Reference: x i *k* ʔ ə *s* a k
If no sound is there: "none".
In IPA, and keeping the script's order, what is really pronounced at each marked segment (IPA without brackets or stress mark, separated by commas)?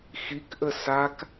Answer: k, s